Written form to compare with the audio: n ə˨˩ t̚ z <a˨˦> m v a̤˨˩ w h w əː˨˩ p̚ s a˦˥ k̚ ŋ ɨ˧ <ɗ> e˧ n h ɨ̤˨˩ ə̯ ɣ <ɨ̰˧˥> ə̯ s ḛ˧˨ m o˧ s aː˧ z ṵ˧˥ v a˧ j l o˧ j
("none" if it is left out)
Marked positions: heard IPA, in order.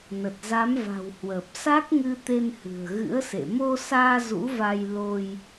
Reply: a˨˦, t̪, ɨ̰˧˥

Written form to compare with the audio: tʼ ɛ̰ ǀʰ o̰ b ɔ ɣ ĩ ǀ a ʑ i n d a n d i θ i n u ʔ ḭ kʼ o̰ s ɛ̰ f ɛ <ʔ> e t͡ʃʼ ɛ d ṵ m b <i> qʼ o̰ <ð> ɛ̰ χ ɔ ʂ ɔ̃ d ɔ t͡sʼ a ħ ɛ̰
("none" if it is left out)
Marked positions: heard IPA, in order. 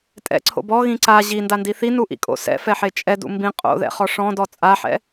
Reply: ħ, ĩ, ð

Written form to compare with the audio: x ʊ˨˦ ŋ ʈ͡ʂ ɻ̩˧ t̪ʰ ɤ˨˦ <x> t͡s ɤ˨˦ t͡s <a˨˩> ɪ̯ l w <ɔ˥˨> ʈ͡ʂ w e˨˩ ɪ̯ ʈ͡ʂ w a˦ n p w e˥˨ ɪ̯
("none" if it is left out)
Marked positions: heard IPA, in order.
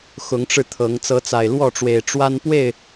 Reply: ŋ, a˨˩, ɔ˥˨

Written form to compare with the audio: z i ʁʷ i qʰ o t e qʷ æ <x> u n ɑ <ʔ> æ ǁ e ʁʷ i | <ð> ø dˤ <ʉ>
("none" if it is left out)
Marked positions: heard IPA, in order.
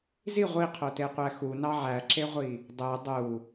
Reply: x, ʕ, dˤ, u

